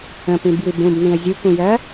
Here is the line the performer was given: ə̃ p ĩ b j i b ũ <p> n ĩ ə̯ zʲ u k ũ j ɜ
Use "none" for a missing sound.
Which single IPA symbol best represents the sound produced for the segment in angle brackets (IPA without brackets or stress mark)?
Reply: b